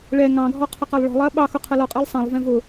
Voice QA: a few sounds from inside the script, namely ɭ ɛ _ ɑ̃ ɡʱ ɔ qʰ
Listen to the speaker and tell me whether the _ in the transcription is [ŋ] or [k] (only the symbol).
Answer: ŋ